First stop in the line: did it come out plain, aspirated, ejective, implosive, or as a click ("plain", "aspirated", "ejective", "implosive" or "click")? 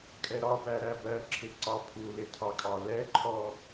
ejective